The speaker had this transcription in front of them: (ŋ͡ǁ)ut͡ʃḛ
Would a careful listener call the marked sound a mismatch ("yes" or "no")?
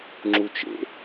no